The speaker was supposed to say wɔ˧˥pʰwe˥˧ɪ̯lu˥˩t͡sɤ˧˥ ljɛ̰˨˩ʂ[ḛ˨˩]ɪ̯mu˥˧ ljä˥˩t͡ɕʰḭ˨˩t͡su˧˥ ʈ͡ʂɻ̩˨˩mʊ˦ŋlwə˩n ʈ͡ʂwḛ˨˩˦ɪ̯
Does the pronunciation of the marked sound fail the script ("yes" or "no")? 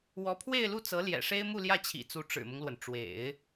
yes